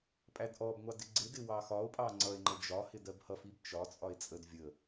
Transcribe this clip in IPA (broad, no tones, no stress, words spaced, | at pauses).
pʼædʔɔbŋʷɑ dɪɡ͡ǀɪdɪ wɑxɒo̯pʼɑ ŋ͡ǀʌe̯ŋ͡ǃə d͡ʒɒhɪ dɜbhʌfib t͡ʃɒt͡sʼɒe̯ t͡sʼəd vʲə